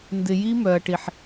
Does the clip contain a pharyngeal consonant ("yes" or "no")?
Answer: yes